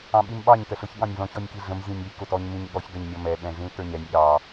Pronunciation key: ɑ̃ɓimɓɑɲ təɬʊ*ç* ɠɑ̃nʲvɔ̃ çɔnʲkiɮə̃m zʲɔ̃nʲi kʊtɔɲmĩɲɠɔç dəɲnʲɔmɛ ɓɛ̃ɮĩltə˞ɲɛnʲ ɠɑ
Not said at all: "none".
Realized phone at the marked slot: ç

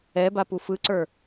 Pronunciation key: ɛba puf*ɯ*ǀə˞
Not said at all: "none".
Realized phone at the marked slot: ɯ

